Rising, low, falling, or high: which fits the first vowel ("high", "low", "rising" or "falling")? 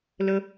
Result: low